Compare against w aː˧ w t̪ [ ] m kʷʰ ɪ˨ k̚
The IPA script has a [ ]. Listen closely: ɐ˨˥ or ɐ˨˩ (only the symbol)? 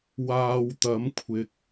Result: ɐ˨˥